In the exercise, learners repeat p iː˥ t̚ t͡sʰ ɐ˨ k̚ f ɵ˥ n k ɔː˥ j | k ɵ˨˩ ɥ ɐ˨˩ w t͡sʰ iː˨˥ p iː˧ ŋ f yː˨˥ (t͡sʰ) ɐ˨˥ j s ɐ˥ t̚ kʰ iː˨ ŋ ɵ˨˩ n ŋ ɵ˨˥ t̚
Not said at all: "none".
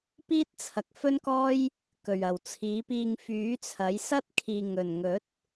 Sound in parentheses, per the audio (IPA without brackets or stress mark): t͡sʰ